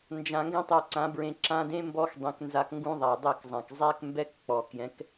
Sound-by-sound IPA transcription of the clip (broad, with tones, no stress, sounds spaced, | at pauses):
n d͡ʒ ã˧ ŋ ɡ ɛ̃˦ tˤ u˨ ǀ ã˨˦ b ɹ ẽ˧ ǁ ã˧ d ẽ˦ m b ɔ˦ x dˤ ẽ˧ k n z a˧ k ŋ ɡ ũ˦ ðˤ a˨ dˤ e˦˨ k zˤ ã˨ k zˤ ɛ˦ k m b ɛ˦ k k͡p ɔ˨ k j ɛ̃˨˦ k